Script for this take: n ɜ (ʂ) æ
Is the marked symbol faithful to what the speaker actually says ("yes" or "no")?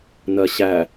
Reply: no